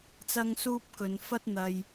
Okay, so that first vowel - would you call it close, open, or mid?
open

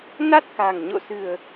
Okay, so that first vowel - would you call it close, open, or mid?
open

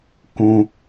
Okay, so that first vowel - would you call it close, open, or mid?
close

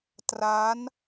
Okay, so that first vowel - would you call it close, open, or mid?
open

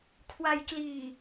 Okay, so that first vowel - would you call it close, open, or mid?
open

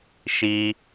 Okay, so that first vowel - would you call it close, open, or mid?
close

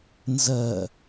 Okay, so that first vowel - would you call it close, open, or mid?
mid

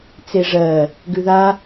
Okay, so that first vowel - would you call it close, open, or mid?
mid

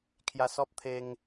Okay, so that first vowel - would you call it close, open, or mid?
open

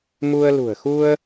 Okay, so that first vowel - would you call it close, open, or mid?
close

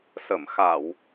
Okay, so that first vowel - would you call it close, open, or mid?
mid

